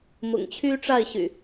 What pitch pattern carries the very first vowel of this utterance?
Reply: low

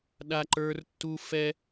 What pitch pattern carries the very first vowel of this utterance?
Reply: high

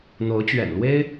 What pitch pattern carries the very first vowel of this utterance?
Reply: rising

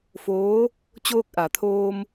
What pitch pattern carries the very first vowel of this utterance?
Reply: rising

